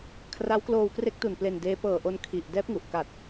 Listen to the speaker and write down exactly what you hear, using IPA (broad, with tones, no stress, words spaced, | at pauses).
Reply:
kʰra˦˥wkloː˧wkre˦˥k̚tu˨˩n ple˧ndeː˦˥ pɤː˨˩ʔo˧n kʰi˨˩ʔ dɛː˦˥p̚ŋu˨˩ʔ ka˨˩t̚